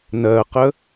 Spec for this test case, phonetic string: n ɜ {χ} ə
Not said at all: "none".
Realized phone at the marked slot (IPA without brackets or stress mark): q